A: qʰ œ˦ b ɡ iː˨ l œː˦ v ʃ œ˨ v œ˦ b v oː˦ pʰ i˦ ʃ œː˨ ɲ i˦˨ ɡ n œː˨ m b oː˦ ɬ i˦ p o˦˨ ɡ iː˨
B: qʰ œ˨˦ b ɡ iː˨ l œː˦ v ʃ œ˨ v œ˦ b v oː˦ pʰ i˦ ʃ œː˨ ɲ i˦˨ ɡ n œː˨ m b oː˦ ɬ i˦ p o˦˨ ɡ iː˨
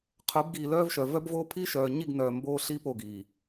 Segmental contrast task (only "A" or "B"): B